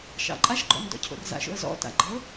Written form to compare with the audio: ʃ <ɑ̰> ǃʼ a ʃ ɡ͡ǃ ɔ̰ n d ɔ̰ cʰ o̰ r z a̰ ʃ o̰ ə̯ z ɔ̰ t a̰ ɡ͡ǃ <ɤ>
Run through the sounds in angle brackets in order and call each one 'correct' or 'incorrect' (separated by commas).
correct, correct